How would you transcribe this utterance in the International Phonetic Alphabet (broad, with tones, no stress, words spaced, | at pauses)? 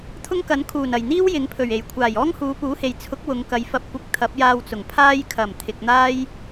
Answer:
t̪ʰʊ˥ŋkɐ˨˥n kʰuː˨˩nɐ˨˩jn̪iː˥w jɪ˨˥ŋpʰɵ˨˩ɥe˨˩j kʷʰaː˨˩jɔː˥ŋhuː˨˧ puː˨˥he˨j t͡sʰʊ˨˥k̚ wʊ˨˧ŋkɐ˨˧j fɐ˧p̚kʷɪ˧k̚ t̪ʰɐ˨˥p̚jaː˧wt͡sʊ˨˩ŋ pʰaː˧jkʰɐ˨˩m t̪ʰɪ˨k̚n̪aː˥j